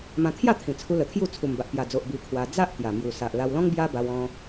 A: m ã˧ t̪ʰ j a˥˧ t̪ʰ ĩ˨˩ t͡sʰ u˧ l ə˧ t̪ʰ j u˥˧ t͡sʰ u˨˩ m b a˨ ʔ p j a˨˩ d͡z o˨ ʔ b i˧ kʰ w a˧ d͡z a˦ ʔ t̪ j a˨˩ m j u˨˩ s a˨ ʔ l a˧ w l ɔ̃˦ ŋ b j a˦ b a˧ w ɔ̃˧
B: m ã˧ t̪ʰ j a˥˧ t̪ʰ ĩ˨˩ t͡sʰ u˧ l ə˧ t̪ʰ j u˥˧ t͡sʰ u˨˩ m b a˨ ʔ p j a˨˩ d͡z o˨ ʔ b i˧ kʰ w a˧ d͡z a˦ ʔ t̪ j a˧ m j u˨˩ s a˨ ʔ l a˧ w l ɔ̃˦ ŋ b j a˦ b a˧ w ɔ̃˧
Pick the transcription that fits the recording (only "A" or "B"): A